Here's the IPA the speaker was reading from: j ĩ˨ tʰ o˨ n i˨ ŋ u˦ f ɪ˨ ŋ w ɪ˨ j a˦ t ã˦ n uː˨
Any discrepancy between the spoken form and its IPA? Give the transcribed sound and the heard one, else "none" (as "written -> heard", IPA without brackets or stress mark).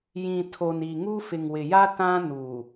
none